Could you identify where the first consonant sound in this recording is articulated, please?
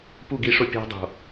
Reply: labial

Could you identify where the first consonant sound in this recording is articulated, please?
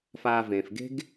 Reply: labial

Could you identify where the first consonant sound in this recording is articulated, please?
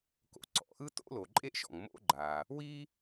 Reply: velar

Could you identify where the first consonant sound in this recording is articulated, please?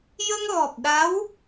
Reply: palatal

